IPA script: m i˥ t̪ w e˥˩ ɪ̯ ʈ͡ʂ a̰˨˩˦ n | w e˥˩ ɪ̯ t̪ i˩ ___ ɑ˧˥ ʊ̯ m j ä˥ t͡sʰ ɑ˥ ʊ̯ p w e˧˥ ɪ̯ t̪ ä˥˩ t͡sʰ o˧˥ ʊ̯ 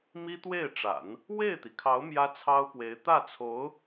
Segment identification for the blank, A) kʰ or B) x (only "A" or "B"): A